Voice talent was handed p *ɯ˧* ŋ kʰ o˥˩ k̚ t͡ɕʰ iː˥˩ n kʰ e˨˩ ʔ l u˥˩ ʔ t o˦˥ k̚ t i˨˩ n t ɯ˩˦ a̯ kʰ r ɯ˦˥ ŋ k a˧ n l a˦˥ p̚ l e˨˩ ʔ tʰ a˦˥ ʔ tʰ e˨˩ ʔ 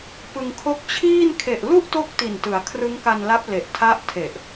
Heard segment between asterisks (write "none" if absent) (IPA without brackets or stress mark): ɯ˧